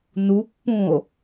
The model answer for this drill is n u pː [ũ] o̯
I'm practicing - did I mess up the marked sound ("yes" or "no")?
no